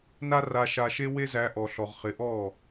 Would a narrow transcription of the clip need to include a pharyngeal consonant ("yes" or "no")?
no